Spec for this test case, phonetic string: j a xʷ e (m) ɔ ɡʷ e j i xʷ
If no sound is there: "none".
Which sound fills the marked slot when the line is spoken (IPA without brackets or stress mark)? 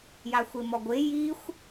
m